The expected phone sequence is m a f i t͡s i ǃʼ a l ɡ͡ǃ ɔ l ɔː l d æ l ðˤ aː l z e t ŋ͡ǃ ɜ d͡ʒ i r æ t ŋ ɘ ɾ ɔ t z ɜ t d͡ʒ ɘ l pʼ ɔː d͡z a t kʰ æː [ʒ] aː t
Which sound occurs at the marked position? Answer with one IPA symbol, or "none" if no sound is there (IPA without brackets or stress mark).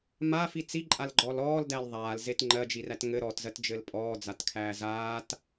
z